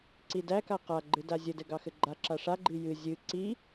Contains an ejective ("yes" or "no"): no